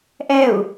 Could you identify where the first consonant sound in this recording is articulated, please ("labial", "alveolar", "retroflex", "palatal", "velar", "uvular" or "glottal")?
glottal